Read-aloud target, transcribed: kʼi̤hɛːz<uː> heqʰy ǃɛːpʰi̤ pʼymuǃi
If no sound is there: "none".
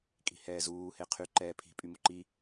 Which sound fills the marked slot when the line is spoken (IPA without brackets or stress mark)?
uː